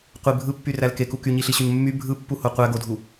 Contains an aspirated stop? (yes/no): no